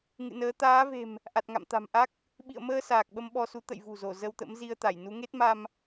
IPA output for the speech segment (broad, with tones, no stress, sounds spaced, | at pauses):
ŋ ɨ̰˧˨ n əː˨˦ t̪ aː˨˦ v e̤˨˩ m | ʔ a˨˩ t̚ ŋ a̰˧˨ m t̪ a̤˨˩ m ʔ a˦˥ k̚ | ɓ ḭ˧˨ ə̯ m əː˧ s aː˨˩ k̚ ɓ ə˧ m ɓ ɔ˧ s u˨˦ t̪ ə̰˧˨ j v ṳ˨˩ z o˧˩ z ə˧ w t̪ ə̰˧˥ m z i˧ ə̯ t̪ a˧˩ j n u˨˦ ŋ e˦˥ t̚ m a˧ m